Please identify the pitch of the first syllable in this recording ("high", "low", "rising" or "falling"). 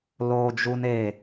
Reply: high